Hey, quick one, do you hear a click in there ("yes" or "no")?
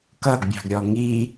no